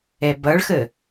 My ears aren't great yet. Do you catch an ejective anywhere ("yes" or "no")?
no